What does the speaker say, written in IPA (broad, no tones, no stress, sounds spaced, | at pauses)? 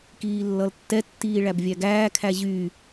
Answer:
k iː lː ʌ l tː ɛ tː iː ɭ æ b vʲ æ ɡ æː kʰ æ ʑ y